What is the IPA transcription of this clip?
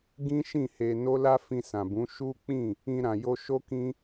ɡ ĩ˦ ʃ ĩ˦˨ h e˧ n o˦ l a˦ f ĩ˧ s ã˨ b ũ˨˦ ʃ u˦ k͡p ĩ˦˨ | ĩ˧ ɾ ã˨ j o˧ ʃ o˦ k ĩ˦

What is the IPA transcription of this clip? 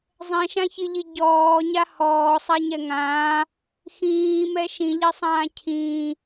zˤ ɛ̃ ʃ ã ç i ʎ i ɟ ɔː ɲ a h ɔː sˤ a ɲ ɛ ŋ ãː | x ĩː m ɛ ʃ ĩ ʎ ɛ sˤ ãː cʰ ĩː

